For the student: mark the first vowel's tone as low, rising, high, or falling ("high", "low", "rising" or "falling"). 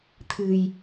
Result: low